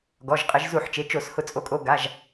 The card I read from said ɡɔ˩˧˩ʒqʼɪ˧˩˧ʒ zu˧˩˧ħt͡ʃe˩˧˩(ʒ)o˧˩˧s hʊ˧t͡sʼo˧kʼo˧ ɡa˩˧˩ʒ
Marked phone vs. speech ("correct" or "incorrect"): incorrect